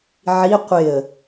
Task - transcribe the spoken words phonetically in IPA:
ʕ i qʷ ɪ ə̯

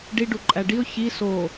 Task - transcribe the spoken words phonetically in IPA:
ɖ i ɖ u ǃʼ æ ɖ i ʊ̯ ç i s o

